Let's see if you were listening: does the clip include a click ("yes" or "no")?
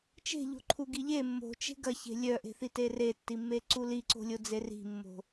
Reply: yes